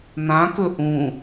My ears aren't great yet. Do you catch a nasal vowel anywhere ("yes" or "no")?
yes